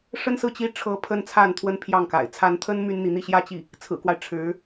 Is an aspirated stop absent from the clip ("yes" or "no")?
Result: no